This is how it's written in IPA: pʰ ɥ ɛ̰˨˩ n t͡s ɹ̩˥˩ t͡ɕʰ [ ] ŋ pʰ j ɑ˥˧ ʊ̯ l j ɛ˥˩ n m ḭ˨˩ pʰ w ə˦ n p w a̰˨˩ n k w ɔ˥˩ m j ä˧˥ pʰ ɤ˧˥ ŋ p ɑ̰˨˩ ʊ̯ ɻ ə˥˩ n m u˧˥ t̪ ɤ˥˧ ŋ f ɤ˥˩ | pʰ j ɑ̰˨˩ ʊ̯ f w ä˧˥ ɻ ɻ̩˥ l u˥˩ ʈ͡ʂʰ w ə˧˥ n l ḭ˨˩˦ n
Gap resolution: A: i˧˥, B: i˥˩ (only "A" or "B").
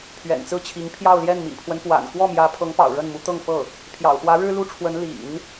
A